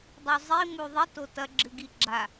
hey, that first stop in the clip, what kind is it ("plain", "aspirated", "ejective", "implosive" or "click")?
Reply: plain